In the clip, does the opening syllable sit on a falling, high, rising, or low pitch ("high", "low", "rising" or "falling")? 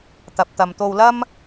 low